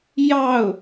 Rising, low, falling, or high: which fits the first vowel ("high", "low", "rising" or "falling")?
falling